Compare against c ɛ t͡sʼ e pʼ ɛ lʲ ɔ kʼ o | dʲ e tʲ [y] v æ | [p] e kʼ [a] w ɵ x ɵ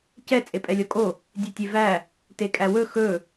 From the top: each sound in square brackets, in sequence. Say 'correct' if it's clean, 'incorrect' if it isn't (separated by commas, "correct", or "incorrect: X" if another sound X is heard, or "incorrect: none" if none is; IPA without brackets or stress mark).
incorrect: e, incorrect: t, incorrect: æ